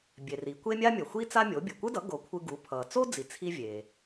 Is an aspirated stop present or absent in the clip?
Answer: present